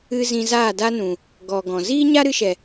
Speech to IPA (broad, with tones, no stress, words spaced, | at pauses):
ɨ˦ zĩ˧zaː˦˨da˦nũ˨ | ɡɔ˨ ɡɔ̃˨ ziː˦ɲa˦ɾɨ˧ʃɛ˨